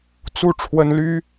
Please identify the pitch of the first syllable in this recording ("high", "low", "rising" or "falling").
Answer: falling